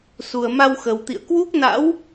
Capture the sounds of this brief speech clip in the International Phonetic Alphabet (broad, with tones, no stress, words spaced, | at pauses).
su˨˩ə̯ma˧wxə˨˩wt̪ḭ˧˨ə̯ kwu˦˥k̚na̰˧˥w